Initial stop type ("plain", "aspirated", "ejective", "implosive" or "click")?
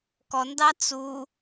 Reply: plain